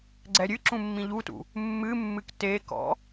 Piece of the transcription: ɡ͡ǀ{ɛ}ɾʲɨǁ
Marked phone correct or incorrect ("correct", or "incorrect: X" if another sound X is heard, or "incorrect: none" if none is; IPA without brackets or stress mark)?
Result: correct